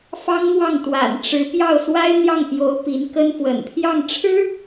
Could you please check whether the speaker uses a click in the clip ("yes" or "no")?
no